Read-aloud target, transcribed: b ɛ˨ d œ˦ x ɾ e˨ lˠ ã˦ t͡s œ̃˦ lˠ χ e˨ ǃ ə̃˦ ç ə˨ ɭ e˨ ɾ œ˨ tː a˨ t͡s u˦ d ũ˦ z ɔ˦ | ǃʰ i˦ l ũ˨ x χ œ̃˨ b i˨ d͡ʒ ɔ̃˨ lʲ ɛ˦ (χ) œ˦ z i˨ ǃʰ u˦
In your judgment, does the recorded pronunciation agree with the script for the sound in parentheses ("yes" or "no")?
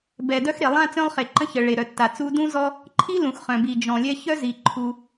no